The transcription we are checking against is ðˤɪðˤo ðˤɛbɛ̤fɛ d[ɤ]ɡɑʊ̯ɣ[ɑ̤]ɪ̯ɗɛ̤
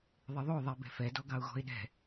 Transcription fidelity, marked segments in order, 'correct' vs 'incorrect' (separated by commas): incorrect, incorrect